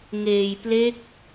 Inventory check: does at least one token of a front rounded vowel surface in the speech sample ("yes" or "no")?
no